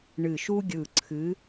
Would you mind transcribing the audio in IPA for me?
ɳ ɨ˧˩ ʃ u˥ ɡʲ ɯ˧˩ ǀʰ ɨ˨˥

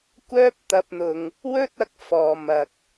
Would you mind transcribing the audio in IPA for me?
kʷ œː˥ p̚ t̪ ɐ˧ p̚ n̪ ʊ˨ ŋ | w ɵ˥ t̚ ɐ˧ k̚ f ɔː˨ m ɐ˨ k̚

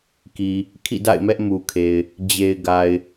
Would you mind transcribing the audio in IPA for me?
k i˨ | kʰ ḭ˦˨ d a̰˦˨ ɪ̯ m ɛ˦ ʔ m u˨ kʰ e˨ ɪ̯ | d͡ʑ e˨ ɪ̯ ɡ a˨ ɪ̯

